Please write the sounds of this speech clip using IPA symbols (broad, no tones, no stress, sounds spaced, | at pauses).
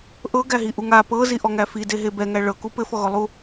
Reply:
ʔ ɤ ɡ æ ɦ i ʔ u ŋ a p ɤ z i ʔ ɔ ŋ æ f i d e ɦ e b ɛ ŋ æ ɭ ɤ k u p ɘ f ɔ ɣ ɔ lˠ u